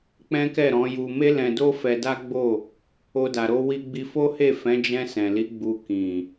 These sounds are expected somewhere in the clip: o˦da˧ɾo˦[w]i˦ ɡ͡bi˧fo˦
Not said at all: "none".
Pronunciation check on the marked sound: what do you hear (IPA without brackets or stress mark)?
w